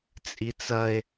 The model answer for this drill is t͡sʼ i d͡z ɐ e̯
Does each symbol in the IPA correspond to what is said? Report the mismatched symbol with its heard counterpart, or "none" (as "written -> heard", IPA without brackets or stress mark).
d͡z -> t͡s